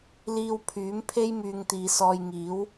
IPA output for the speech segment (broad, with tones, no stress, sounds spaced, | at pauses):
l iː˧ w pʰ yː˨˥ m pʰ e˥ j m yː˧ ŋ t̪ iː˨˧ s ɔː˧ j ŋ iː˨˥ w